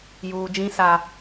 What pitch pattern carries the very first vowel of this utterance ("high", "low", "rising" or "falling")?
low